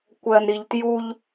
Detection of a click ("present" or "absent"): absent